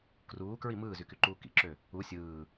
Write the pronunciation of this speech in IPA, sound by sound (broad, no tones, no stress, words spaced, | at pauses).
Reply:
kruːkɹi mɯːzykyǃuː kḭǁø | u sʲɯː